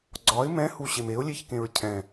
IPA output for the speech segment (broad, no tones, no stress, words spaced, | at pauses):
ɡ͡ǀɒɪ̯ mɛ̃huɕem eʊ̯lʲeçkẽɹ cʰɛ̃